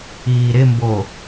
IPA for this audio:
iː ɾ ɪ m b o

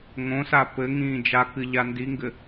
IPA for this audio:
ŋ õ s a p ɘ ŋ ĩː d͡ʒ a k ɨ ʎ a n d i ŋ ɡ ɘ

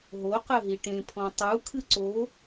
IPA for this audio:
ɦ o q ɘ ɦ i ʈ ẽ pʰ ɔ̃ tˤ u kʰ ɨ ǀ o

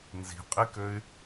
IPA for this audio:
n z i̤ qʼ i k ø y̯

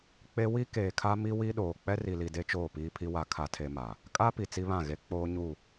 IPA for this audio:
k͡p e˦ w i˦ k eː˨ kʰ a˦ m i˦ w i˦ ɗ oː˨ k͡p ɛ˦ r i˨ l i˨ d e˦ t͡ʃ oː˦˨ p iː˦ pʰ i˦ w a˦ kʰ a˦ tʰ e˦ m a˨ | kʼ a˦ p i˨ t͡s i˦ β ã˦˨ ɣ e˦ k͡p oː˦ ɲ u˦˨

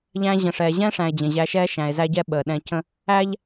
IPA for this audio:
ʎ æ̃˧ ʑ ə̃˨ ʂ ɛː˨ ʑ ɛ̃˦ ʂ æ̃˨ e̯ d͡ʑ ə̃˨ ʑ æ˧ ʃ ɛː˦ ʃ æ̃˧ e̯ z æ˦ ɟ ɛ˦ ɓ əː˨ ɗ ɛ̃˧ c ə̃˦ | æ˦ ʎ

